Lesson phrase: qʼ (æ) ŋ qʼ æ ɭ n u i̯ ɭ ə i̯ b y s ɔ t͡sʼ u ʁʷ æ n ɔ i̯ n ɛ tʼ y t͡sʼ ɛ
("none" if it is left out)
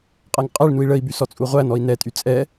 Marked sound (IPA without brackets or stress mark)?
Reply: æ